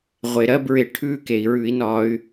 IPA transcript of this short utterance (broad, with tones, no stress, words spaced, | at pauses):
ʁʷe˩ ɾɜ˦˥bɹɪ˧˩˧ ʈʰʉ˧˥˧ke˩i̯ ɹʉ˧˩˧i̯nɒ˧˩˧y̯